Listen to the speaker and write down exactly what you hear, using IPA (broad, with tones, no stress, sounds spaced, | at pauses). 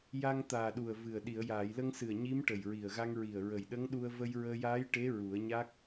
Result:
j a˧ ŋ t̪ aː˨˩ ɗ u˨˩ ə̯ v ɨ˨˩ ə̯ ɗ i˨˩˨ ə̯ j aː˨˩˨ j l ə˧ ŋ s ɨ˨˩ ə̯ ɲ i˧˥ m ʈ ə˨˩ j ɹ i˨˩ ə̯ ɣ a˧ ŋ ɹ i˨˩ ə̯ ɹ ə˨˩ j ɗ ə˧˥ ŋ ɗ u˧ ə̯ v ə˧ j ɹ əː˧ j aː˧˥ j ʈ e˧˥ ɹ u˨˩˦ ə̯ ɲ a˦˥ k̚